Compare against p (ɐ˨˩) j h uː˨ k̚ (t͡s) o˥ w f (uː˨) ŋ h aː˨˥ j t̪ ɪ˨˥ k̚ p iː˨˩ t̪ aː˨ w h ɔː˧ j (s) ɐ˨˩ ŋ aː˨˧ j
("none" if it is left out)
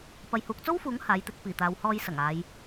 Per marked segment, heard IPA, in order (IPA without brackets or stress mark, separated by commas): ɐ˨, t͡s, uː˨˥, s